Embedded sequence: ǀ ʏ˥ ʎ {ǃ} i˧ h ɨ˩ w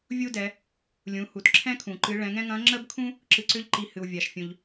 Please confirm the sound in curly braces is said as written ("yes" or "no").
yes